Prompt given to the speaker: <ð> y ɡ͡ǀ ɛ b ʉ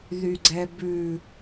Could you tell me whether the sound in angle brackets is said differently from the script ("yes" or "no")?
no